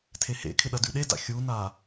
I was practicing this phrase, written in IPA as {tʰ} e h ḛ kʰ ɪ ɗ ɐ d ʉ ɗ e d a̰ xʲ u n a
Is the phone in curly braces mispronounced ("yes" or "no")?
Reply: no